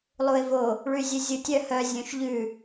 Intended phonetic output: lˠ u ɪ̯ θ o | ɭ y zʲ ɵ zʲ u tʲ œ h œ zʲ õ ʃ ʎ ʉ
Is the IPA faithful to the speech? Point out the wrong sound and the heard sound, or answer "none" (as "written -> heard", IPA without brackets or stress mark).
θ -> v